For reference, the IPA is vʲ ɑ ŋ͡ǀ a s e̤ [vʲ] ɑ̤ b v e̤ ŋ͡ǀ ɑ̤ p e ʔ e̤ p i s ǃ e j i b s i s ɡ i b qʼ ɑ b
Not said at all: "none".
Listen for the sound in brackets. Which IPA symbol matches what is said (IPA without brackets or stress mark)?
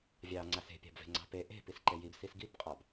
pʲ